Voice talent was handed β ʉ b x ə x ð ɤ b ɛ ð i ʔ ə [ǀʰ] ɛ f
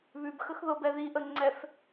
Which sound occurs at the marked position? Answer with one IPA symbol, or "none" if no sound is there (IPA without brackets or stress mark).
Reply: ŋ͡ǀ